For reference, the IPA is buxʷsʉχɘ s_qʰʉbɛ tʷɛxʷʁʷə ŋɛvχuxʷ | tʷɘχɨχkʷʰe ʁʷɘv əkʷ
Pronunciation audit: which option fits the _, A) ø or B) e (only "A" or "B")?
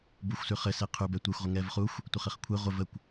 B